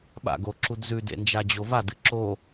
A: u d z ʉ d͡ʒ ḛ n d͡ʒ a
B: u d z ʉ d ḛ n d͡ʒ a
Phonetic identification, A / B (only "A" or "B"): B